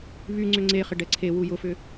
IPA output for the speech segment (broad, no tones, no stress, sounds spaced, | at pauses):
β y ŋ͡ǀ ʏ ŋ͡ǀ e χ ɪ ɖ ɛ ǀʰ e w u j ʊ f ʏ